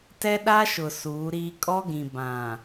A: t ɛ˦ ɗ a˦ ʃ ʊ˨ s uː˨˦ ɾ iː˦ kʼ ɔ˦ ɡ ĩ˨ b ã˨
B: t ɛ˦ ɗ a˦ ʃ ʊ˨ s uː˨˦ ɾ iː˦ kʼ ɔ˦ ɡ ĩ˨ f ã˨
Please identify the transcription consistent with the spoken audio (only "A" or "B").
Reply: A